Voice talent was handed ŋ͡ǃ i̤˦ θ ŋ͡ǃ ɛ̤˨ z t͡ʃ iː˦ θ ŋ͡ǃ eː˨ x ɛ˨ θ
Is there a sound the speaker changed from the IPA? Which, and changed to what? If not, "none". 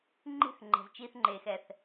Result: none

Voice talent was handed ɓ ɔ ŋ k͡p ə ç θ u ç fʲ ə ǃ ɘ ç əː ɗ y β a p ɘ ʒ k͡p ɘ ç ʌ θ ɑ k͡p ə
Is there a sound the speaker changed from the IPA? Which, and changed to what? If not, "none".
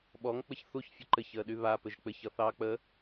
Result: none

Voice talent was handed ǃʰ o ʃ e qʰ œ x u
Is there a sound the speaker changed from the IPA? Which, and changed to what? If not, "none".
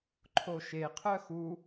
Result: none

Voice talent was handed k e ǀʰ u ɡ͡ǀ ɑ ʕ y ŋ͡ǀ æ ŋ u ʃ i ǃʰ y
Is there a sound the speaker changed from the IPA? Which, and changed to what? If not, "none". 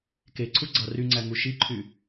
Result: ʕ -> r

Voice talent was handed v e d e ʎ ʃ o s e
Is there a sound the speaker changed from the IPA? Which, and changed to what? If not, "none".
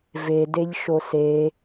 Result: none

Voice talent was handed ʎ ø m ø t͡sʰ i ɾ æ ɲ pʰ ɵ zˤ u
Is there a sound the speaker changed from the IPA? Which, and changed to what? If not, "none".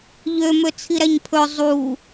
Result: none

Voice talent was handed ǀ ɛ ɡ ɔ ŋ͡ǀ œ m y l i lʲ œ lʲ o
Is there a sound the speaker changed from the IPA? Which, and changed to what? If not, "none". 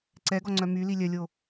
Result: none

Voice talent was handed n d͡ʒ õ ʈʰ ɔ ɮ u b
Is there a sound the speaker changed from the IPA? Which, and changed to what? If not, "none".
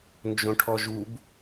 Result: ɮ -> ʒ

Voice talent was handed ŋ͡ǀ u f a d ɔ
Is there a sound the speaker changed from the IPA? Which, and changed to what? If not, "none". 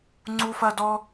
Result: a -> ɐ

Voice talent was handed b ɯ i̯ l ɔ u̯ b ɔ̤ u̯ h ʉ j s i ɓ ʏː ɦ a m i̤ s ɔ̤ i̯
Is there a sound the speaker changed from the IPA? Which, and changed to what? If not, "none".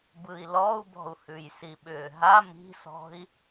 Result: none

